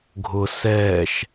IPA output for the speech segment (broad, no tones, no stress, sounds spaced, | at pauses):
ɡʱ ʊ s ɛː ʃ